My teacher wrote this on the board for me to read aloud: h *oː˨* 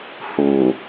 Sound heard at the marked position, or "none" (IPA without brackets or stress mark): uː˨